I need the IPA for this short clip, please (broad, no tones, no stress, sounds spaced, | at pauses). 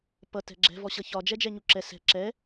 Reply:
p ʌ t ɛ̤ ɡ͡ǁ ɛ̤ v ɔ ɕ ʌ ç ɒ d͡ʒ ɛ d͡ʒ ɛ ɲ u ǁ ɛ s ɛ̤ ǁ ɛ